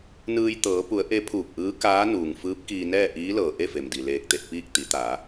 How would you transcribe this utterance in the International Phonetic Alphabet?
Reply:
n ɯː˧ j t̪ ɤː˩˧ p u˩˧ ə̯ ʔ e˧˥ pʰ uː˧˩ p̚ ʔ ɯː˧˥ k aː˧˥ n uː˩ ŋ f ɯː˧˥ p̚ k iː˧ n ɛː˥˨ ʔ iː˧˥ l ɤː˩ ʔ e˥˨ f e˩ m d i˩ l eː˧˩ k̚ t̪ e˥˨ t̚ p iː˥˨ k̚ t̪ i˩˧ t̪ a˩˧

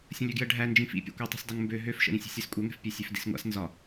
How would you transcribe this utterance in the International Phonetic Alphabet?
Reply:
sʲ ə̃ lʲ ø ɡ j ə ɖʱ æ n d͡ʒ ĩ f ḭ pʲ æ̰ kʷ ø tˤ i̤ sʲ dˤ i ŋ m b ø ɦ ø f ʃ ə̰ ɾ ĩ sʲ i̤ sʲ æ s kʷʼ œ ŋ ɛ̤ f pʲ œ sʲ ø f d ḭ s ŋʷ a̰ s n z ɒ

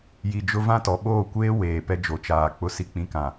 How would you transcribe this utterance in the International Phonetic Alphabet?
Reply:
j i˨ d͡ʒ ʊ˦ v ã˦ t ɔ˨ ɓ oː˦˨ kʷ eː˦ w eː˨ p ɛ˦ d͡ʒ o˨ t͡ʃ aː˨ k͡p ʊ˦ s i˨ k͡p ĩ˨ k ã˨

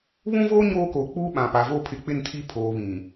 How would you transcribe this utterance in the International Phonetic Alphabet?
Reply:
β ũ˦ v oː˦ ɲ oː˦ k o˨ k͡p uː˦ ɓ ã˨ p a˨ v o˦ pʰ ɪ˨˦ k͡p ɪ˦˨ n tʰ i˦ pʰ oː˨ β ĩ˨

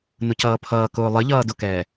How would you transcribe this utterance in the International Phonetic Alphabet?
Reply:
n ʊ c ʌː pʰ ʌː k ʊː lˠ ə ʎ ʌː d ʊ k ɛː

